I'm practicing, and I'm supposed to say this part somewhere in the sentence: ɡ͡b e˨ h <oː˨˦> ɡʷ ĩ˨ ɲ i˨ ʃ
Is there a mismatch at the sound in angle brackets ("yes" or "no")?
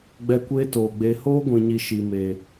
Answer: yes